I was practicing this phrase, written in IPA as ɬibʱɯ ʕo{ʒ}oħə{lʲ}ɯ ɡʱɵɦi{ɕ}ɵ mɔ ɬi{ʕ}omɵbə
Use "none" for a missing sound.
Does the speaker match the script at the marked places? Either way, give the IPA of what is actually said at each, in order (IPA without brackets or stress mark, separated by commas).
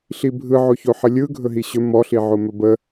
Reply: ç, lʲ, ɕ, ʕ